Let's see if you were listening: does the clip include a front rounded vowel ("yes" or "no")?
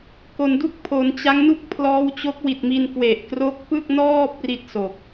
no